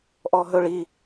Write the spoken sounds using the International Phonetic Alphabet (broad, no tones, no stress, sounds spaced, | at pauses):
ʔ ɔ ɦ ɵ ɭ i